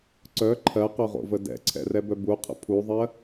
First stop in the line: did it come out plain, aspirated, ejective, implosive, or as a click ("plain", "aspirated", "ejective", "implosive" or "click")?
click